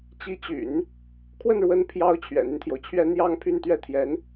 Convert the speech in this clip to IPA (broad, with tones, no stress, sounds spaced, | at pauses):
t͡ɕ i˧˥ t͡ɕ y̰˨˩˦ n | kʰ w ə˥˩ n ɻ w ə˧˥ n pʰ j ɑ˧˥ ʊ̯ t͡ɕʰ ɥ ɛ̰˨˩ n̪ y˦ n t̪ʰ j o˩ ʊ̯ t͡ɕʰ ɥ ɛ˥ n̪ j ɑ˥ ŋ pʰ y˥˧ n t̪ ɥ ɛ˥˩ t̪ʰ j ɛ˧˥ n